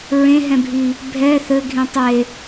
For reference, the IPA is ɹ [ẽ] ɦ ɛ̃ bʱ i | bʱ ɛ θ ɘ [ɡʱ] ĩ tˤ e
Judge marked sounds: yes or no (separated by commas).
yes, yes